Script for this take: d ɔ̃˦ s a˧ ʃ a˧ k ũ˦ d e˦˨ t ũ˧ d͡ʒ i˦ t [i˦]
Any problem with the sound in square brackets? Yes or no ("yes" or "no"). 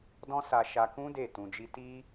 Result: no